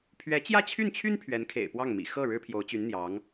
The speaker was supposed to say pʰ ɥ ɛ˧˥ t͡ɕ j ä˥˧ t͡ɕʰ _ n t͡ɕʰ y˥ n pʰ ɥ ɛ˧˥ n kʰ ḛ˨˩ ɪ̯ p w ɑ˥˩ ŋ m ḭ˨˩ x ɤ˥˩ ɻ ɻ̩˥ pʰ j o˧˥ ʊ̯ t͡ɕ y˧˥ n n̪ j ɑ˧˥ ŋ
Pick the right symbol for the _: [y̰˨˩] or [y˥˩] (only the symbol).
y˥˩